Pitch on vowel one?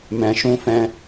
low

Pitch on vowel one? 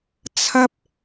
high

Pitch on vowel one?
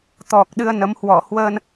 low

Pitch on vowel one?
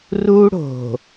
high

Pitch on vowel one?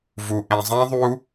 low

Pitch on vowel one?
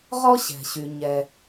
high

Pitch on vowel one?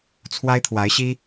high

